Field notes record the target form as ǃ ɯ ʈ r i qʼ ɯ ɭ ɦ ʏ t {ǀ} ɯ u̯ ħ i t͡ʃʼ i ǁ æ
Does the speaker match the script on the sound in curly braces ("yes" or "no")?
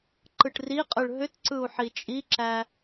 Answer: yes